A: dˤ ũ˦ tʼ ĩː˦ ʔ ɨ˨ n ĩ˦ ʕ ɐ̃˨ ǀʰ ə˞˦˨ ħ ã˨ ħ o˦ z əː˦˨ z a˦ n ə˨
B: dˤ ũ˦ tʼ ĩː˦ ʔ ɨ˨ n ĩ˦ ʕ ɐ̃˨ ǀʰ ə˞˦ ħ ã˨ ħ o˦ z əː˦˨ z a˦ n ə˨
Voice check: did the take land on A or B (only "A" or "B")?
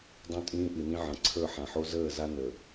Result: A